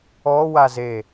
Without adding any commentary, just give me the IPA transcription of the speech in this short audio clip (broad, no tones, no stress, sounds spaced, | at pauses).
ɔ w a z e